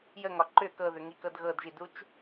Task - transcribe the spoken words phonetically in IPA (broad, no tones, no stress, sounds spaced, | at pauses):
j ə ŋ ɒ ǃ ʏ k ɤ ð ʏ ŋ i k ɤ d ɣ ɤ d ʒ i d u t͡ʃ